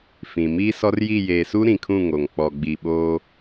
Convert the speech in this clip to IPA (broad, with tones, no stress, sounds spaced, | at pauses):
f ĩ˨ m iː˦ s ɔ˦ r j i˦˨ j eː˨ s u˦ ɾ ĩ˨ kʰ ũ˦˨ ŋ o˨ ŋ k͡p ɔ˨ ɡ͡b i˨ ɓ oː˦